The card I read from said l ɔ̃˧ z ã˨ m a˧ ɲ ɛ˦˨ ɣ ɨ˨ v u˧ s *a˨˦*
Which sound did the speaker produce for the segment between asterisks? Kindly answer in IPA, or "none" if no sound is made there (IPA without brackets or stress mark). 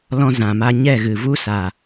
a˨